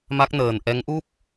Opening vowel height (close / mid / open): open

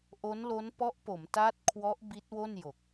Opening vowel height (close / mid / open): mid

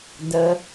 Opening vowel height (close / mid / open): mid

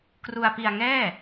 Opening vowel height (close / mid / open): close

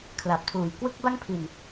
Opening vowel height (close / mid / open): open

